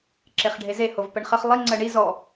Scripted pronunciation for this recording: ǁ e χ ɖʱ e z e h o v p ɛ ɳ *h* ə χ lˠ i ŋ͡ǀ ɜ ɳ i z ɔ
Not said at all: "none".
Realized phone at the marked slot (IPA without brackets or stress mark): χ